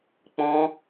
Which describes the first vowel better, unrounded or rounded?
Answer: rounded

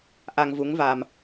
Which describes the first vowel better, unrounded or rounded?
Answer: unrounded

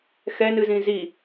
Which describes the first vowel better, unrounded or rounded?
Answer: unrounded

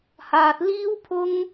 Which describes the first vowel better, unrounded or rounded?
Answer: unrounded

